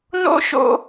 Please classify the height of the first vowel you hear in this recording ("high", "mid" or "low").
mid